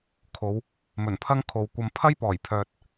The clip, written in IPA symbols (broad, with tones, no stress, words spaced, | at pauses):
kʰo˨˧w | mɵ˨˩npʰɐ˥ŋkʰo˨wkʷɐ˧m pʰɐ˥jpɔː˨˩jpʰœː˨t̚